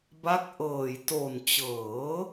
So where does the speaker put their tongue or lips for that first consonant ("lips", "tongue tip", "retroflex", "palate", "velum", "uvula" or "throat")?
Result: lips